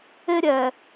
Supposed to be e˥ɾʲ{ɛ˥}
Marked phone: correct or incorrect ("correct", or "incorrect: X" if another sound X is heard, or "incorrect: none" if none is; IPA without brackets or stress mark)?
incorrect: ɛ˨˩